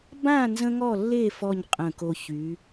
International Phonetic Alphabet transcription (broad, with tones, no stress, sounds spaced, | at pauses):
b ã˥˧ n z ə̃˥ ŋ ɔ˥˧ lː e˥˧ f ɔ˥˧ ɲ qʼ ə̃˧˩ k o˧ ç y˩˧